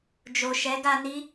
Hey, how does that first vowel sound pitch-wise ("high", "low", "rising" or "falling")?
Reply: low